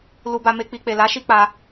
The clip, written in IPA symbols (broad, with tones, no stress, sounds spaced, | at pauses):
l u˧ b a˧ m e˧ k͡p i˨ k͡p e˨ l a˨˦ ʃ i˧ k͡p a˦